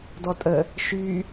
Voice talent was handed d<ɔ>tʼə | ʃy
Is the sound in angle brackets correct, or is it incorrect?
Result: correct